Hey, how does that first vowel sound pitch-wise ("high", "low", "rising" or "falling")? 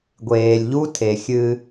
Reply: low